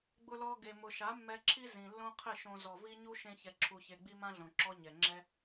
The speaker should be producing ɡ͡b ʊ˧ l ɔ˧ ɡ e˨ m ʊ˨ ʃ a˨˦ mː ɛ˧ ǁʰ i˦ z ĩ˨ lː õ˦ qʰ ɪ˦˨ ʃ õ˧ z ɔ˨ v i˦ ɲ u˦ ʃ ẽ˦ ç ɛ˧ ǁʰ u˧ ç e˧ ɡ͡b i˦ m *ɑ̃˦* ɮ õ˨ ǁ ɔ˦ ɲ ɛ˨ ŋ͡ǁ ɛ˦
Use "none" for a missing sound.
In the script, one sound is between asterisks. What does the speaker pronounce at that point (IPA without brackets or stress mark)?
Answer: ã˦